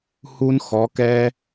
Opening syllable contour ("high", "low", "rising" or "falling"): high